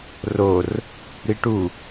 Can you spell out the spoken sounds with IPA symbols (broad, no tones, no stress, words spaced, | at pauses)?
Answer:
ror | ɾiʈu